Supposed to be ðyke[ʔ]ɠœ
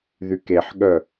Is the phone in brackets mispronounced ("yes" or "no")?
yes